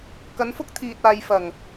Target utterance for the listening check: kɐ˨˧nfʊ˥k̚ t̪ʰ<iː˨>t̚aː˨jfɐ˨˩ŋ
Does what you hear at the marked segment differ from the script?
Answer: no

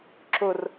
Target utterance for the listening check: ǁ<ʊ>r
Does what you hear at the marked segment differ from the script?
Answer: no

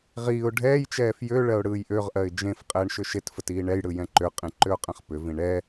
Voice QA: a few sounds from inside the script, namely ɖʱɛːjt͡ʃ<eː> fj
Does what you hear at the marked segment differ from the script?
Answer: yes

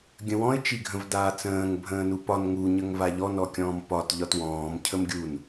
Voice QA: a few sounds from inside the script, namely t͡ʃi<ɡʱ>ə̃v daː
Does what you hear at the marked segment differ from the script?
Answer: no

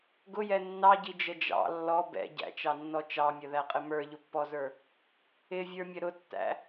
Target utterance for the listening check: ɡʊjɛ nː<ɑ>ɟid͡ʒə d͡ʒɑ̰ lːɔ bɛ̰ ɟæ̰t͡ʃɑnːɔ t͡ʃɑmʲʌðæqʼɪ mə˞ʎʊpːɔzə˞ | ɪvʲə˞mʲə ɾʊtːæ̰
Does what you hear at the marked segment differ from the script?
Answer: no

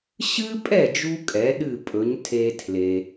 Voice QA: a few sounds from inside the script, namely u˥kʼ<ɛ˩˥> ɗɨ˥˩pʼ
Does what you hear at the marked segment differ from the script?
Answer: no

